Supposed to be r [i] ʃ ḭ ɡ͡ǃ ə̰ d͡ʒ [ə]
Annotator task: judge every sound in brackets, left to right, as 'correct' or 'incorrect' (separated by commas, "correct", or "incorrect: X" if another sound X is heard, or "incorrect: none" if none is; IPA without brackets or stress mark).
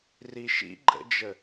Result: correct, correct